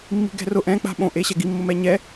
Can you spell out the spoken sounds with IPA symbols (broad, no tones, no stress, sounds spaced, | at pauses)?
mː i̤ ɡ ɛ̤ r ʊ ʔ ɛ̃ k͡p a̤ ɓ õ ʔ e ɕ ɛ ɡ i mː ʊ m ɛ ɲ ɛ